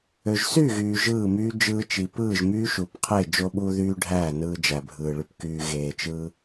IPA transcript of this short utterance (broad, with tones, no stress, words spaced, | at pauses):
ø˨ʒsyː˦˨ɣyː˨ ʒɯː˦˨myː˦ d͡ʒɯː˧t͡ʃi˨ pɯː˦˨ʒmyː˦ʃu˨pqʰe˦˨ d͡ʒo˧ɓu˧ðyː˧ ɖʱæː˦˨nɯː˧d͡ʒæ˨bʱɯː˨ ɭy˨pkyː˨ ɣeː˨t͡ʃɯː˧